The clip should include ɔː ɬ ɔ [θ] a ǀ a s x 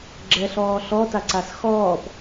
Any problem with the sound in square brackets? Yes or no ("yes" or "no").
yes